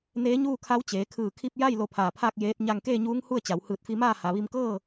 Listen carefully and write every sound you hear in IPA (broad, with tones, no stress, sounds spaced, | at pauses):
n eː˧˥ ɲ uː˥˨ kʰ a˧˥ w t͡ɕ eː˩˧ kʰ ɯː˧˩ kʰ i˧ p̚ j a˥˨ j l o˧ pʰ aː˧˩ pʰ aː˥˨ k̚ j eː˧˥ t̚ ɲ a˧ ŋ k eː˥˨ ɲ uː˧˥ ŋ h u˥˨ ə̯ t͡ɕ a˩˧ w h ɯː˧˩ t̚ f i˧ m aː˥˨ h a˩ ʋ i˧ m k ɤː˥˨